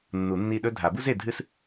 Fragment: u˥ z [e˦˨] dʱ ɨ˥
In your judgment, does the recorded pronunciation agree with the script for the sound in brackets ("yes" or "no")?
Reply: yes